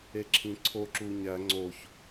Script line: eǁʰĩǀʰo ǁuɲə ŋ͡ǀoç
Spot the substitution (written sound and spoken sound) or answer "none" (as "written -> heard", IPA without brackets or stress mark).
ə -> æ